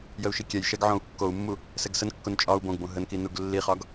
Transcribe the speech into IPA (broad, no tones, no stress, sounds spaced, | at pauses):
j ə u̯ ʃ i kʲ ɛ j ʃ ɛ ɡ ʕ õ u̯ kː o u̯ mː u | s ɛ ɡ s ə n kː o n t͡ʃʼ ɒ u̯ b õ ɡ b õ ɦ ə n k i n u ɡ lː i χ ɒ ɡ